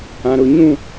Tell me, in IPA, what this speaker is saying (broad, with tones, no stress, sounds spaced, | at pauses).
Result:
ã˨ ɾ ʊ˦˨ ɲ ũ˦˨